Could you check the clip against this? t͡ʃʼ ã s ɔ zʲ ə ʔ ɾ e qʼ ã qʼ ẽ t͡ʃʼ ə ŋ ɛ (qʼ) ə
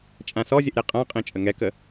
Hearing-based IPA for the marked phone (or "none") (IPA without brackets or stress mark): k